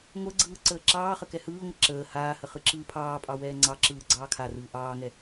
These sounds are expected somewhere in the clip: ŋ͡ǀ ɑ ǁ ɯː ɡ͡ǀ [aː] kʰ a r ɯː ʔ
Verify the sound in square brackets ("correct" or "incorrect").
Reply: incorrect